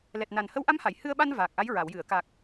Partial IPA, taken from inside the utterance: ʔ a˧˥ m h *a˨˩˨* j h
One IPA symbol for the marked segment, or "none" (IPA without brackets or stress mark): a˨˩˨